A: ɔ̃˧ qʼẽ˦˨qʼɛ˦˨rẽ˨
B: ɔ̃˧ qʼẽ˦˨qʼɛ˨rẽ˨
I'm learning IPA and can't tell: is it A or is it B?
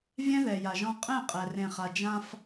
B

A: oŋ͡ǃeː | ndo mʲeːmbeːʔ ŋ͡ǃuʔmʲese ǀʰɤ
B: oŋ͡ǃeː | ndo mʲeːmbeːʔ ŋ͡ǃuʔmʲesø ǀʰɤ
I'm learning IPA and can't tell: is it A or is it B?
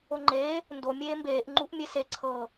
A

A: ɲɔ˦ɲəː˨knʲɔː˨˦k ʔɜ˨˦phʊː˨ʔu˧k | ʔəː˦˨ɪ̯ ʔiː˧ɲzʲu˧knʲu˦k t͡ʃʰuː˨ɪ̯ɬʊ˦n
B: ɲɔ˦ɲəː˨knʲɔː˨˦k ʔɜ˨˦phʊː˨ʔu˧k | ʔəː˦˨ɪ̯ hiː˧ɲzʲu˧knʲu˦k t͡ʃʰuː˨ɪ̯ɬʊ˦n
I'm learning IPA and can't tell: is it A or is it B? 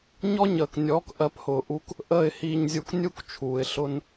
B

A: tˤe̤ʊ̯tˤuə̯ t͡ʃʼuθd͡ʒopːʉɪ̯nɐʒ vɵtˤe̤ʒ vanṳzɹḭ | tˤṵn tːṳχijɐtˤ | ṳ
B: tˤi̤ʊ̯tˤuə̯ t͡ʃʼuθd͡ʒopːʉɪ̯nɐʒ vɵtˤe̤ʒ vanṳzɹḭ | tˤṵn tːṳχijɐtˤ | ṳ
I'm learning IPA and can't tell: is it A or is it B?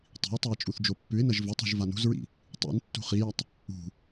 B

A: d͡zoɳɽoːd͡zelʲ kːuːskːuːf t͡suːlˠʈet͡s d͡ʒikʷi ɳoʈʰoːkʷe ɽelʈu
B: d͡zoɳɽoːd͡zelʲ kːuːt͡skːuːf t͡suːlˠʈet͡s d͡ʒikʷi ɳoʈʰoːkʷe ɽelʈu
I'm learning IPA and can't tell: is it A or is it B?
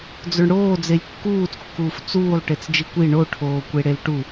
B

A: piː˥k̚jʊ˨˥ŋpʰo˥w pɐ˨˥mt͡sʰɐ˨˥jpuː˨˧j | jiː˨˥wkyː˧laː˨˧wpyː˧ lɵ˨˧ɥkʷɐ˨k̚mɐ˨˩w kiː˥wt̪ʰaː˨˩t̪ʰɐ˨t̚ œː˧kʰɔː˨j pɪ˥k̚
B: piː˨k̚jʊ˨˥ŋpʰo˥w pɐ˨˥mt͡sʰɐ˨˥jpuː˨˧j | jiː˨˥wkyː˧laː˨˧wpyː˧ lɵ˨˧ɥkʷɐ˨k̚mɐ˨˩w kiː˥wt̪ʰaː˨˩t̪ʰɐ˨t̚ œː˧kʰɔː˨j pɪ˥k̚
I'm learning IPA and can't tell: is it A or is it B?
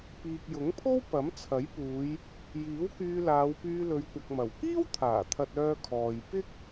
B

